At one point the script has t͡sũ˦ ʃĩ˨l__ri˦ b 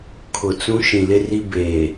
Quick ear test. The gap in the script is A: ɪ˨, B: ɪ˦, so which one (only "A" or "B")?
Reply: B